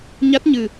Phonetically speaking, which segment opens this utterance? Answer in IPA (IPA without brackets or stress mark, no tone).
ɲ